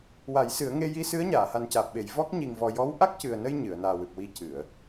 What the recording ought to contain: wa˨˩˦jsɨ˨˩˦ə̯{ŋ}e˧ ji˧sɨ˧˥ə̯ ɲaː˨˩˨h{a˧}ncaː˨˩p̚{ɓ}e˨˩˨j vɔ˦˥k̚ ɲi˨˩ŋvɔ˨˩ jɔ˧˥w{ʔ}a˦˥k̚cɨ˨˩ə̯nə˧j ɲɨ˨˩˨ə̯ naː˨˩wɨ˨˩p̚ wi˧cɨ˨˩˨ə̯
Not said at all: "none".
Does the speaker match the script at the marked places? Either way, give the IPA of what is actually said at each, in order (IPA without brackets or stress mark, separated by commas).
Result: ŋ, a˨˩, ɓ, ʔ